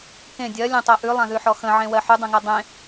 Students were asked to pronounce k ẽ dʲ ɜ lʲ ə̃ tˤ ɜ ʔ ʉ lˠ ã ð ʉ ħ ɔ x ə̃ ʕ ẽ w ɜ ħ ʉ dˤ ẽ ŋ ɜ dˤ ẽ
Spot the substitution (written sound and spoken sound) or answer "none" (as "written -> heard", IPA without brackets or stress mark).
none